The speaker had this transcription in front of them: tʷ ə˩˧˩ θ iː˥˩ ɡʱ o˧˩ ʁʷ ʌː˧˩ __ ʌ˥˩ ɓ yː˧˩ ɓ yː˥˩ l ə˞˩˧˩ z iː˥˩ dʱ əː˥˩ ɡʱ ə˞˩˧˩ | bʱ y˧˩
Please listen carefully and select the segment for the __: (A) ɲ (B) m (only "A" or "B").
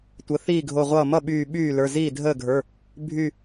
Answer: B